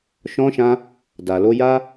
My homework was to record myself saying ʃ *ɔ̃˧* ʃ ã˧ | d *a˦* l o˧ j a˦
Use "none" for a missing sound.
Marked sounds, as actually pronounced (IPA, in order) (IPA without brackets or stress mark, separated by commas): ɔ̃˧, a˨